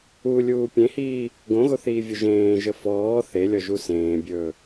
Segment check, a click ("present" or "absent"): absent